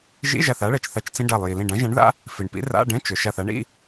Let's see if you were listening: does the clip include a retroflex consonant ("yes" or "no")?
yes